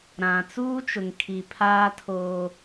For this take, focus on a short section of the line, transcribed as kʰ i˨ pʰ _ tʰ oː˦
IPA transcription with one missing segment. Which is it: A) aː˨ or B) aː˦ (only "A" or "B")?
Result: B